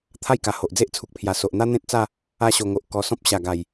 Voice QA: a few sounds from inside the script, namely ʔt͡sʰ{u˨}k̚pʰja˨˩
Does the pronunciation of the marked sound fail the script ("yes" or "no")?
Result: no